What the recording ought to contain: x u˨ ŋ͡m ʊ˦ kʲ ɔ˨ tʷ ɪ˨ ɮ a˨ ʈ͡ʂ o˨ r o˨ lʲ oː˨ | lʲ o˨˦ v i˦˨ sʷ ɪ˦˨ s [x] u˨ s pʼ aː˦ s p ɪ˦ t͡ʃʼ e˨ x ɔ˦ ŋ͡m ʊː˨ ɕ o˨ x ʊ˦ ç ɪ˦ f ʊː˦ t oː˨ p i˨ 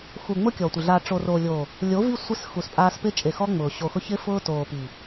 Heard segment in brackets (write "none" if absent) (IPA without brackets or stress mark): x